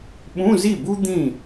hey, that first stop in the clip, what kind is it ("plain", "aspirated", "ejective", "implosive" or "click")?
implosive